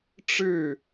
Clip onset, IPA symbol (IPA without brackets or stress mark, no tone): ʈ͡ʂ